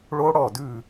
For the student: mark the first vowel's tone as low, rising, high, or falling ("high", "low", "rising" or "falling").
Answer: high